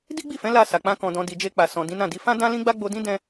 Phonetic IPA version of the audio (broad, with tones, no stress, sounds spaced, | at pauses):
d i˦ ɡ͡b i˦˨ f ɛ̃˨˦ l a˧ s a˨ k͡p ã˧ k ɔ̃˨ d ɔ̃˨ d i˨ d͡ʒ e˧ k͡p a˨ s ɔ̃˨ d ĩ˨˦ n ã˦˨ d i˧ f ã˦ d ã˦ l ĩ˦ ɡ͡b a˦ ɡ͡b o˧ d ĩ˦ d ɛ̃˦